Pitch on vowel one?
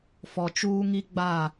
low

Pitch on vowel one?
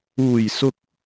low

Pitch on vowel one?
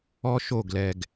high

